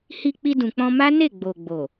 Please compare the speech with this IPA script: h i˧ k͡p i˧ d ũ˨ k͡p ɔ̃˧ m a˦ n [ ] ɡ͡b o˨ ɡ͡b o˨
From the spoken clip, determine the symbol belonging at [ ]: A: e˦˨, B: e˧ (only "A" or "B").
A